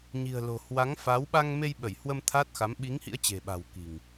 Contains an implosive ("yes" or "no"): yes